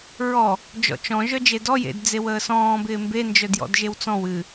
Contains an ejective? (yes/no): no